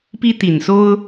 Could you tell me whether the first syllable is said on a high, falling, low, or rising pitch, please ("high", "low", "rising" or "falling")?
high